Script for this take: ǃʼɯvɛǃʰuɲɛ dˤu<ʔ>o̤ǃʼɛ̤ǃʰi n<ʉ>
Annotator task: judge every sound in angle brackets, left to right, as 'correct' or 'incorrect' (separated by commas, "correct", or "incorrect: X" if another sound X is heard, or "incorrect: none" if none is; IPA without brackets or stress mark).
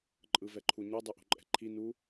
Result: correct, incorrect: u